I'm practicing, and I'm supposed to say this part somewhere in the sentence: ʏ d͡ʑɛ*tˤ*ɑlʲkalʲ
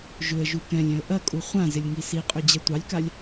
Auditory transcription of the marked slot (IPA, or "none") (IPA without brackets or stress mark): tʷ